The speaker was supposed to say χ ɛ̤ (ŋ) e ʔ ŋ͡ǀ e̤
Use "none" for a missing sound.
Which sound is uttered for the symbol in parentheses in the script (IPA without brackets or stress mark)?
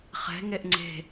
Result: ŋ